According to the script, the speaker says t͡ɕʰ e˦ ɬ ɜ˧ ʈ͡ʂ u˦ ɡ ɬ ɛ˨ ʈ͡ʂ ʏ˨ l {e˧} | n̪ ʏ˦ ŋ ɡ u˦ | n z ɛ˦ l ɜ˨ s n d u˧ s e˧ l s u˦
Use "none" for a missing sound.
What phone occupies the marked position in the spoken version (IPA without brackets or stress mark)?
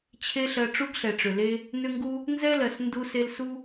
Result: e˧